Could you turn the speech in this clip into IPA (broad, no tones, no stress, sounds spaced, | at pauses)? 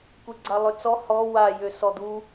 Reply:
kʷ e ɡ͡ǀ a lˠ ø t͡s ɔ h ɔ w a j ø s ɔ d̪ u